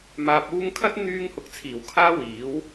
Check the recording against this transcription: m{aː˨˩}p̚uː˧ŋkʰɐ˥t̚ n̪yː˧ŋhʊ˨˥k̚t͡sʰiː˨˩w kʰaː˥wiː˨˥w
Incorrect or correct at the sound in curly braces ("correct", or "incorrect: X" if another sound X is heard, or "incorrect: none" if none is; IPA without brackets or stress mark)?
incorrect: aː˨